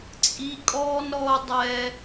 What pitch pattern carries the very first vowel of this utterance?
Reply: high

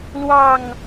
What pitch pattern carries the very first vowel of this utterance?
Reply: falling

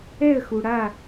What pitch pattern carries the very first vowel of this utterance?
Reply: falling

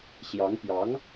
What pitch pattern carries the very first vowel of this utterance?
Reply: rising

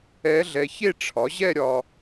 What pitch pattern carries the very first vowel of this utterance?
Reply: rising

